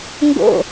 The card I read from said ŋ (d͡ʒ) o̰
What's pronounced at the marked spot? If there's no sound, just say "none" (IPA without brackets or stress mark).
ɡ